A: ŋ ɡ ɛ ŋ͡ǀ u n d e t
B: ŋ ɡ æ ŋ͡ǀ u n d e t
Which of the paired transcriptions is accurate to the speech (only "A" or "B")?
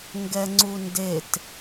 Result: A